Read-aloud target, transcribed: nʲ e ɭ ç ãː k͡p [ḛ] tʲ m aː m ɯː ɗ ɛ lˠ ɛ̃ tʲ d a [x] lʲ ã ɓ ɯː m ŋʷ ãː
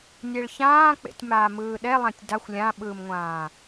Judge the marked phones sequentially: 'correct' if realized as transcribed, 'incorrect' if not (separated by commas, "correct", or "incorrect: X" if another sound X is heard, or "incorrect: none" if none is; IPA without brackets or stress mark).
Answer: correct, incorrect: xʷ